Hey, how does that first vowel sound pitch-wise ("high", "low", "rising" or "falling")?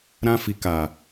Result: high